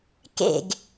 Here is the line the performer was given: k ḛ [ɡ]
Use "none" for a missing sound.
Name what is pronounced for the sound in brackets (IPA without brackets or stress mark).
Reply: ɡ